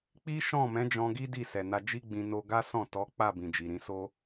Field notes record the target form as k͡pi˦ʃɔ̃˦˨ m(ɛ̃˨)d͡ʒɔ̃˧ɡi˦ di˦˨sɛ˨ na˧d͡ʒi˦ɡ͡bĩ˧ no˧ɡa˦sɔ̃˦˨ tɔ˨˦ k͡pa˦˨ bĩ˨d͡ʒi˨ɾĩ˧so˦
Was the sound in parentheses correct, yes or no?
no